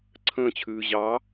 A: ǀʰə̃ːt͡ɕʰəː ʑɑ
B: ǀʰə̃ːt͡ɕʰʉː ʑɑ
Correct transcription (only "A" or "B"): B